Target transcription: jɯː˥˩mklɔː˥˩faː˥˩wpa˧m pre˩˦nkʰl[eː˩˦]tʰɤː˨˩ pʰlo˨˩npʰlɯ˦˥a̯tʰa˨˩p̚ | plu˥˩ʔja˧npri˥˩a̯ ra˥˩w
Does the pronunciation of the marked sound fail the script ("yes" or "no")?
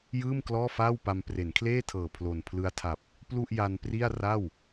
yes